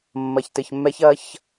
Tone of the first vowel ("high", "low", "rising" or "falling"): low